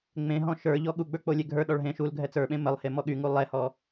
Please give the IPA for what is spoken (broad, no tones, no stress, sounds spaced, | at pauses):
ŋ͡m ẽ ɦ ɔ̃ ʃ ə˞ ʎ ɔ ɠ u ɡ͡b ə˞ k͡p o lʲ e ɡʱ ə˞ ɗ ɔ ɭ ɦ ẽ ʃ u l ɡʱ ɛ t͡s ə˞ ɓ ẽ m ə lˠ h e m ɔ ɠ y ŋ u lˠ ɛ h ɔ